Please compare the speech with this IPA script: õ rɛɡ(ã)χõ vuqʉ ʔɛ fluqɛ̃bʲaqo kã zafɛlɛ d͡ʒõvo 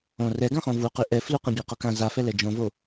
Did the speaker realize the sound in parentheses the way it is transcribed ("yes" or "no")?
yes